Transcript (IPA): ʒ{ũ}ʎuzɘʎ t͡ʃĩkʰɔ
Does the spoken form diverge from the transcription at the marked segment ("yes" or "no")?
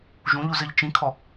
no